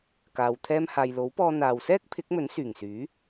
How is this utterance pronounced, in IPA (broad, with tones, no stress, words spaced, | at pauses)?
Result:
kaː˨w t̪ʰɛː˧mhaː˨jlo˨˥wpɔː˧ n̪aː˨wsɛː˥k̚ pʰɪ˨˥k̚mɵ˨˥nsyː˨˩ŋsyː˨˥